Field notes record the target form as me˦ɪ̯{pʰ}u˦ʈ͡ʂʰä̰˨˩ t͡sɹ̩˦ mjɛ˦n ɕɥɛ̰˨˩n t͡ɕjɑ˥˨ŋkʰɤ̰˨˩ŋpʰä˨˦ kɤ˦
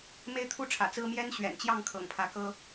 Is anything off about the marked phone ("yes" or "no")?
yes